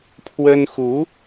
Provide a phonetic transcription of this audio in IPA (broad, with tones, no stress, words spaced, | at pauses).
pʰwə˥n xu˧˥